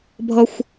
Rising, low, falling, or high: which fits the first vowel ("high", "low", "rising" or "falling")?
high